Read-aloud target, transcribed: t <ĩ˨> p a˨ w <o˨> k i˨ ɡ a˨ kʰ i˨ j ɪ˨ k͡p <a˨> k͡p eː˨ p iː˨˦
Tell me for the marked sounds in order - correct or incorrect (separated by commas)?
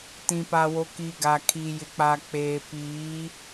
correct, correct, correct